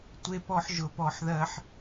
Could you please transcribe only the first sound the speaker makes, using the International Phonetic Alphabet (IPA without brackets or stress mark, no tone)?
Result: tʷ